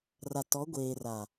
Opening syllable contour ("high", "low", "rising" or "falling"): low